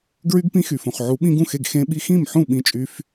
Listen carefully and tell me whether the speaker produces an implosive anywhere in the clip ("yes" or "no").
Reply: yes